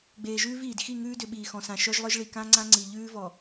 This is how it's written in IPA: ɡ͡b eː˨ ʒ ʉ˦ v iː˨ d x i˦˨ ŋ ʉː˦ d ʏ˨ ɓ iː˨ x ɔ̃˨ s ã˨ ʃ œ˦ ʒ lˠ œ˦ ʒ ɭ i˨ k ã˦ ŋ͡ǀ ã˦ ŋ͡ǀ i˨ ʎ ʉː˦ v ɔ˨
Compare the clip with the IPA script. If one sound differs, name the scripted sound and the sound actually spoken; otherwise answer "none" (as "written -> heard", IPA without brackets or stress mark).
ʉ˦ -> ʉː˦